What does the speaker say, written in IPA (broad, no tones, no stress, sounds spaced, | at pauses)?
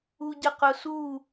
u ɟ ə q ʊ s u